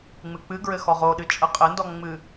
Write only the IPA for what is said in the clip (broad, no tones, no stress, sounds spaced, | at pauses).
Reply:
ŋ͡m ɨ k͡p ɨ ɡ ɹ ɘ x ɔ ʁ o ɗ ɨ t͡ʃʼ ə qʼ ɘ n d ɔ ŋ͡m ɨ